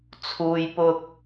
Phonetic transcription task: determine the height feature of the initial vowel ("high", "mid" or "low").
high